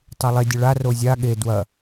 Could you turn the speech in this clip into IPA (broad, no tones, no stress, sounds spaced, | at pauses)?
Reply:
tˤ e lˠ e dʲ ɵ ɭ a r o zʲ a ɠ e d w ɐ